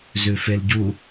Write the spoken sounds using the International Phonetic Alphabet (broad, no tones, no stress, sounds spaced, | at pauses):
z ʉ f e l ɟ u